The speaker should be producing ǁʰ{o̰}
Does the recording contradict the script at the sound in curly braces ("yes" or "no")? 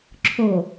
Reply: yes